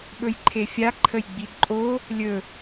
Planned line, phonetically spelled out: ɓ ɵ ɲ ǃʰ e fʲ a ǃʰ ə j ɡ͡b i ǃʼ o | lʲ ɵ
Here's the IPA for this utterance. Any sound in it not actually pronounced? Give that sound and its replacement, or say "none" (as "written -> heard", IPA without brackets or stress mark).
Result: ɲ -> j